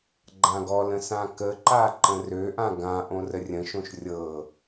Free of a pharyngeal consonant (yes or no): yes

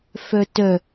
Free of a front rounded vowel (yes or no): no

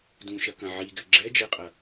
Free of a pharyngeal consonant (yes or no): no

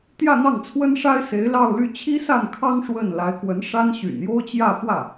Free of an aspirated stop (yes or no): no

